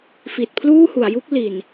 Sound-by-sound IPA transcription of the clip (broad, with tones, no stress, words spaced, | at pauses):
fi˨˩t̚pʰluː˥˩hu˩˦a̯ ju˦˥k̚ li˨˩n